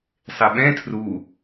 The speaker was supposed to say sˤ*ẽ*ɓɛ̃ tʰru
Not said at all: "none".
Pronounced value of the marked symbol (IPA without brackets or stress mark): e